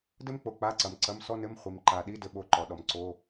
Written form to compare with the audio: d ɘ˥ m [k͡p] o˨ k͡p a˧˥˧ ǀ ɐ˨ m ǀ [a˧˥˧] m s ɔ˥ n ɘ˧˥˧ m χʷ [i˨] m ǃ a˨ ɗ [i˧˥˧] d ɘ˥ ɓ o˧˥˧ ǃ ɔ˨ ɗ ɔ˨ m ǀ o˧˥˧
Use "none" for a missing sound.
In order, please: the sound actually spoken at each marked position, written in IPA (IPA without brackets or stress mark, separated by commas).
k͡p, ɐ˧˥˧, i˨, i˧˥˧